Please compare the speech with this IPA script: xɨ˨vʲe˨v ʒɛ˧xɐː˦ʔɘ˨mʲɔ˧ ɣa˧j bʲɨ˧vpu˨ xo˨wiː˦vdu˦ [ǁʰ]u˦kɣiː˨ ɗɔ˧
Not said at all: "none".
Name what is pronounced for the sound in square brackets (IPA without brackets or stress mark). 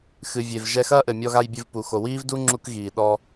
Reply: ŋ͡ǁ